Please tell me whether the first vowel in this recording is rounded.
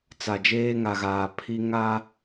no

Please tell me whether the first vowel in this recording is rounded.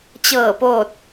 no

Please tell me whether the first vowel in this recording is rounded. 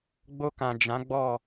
yes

